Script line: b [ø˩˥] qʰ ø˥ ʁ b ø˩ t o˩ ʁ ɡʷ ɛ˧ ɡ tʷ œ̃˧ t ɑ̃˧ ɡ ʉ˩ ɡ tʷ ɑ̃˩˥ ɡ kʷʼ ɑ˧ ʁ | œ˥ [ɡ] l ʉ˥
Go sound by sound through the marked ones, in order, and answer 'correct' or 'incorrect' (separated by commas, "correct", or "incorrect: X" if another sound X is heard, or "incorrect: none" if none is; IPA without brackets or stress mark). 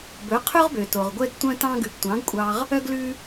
incorrect: ɵ˩˥, correct